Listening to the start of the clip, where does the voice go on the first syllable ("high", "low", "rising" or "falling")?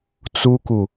high